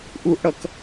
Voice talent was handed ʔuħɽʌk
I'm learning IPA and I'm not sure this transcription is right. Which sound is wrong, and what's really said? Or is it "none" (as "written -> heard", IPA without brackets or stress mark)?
ħ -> ʔ